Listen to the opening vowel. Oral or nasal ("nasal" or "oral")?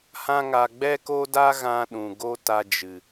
nasal